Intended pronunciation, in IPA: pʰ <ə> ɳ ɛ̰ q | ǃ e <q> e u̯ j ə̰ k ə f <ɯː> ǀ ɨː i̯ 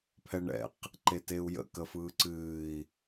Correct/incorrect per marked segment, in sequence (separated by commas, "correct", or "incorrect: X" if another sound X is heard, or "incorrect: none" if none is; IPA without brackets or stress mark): incorrect: ɛ, incorrect: t, correct